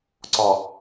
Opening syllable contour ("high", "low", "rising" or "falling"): low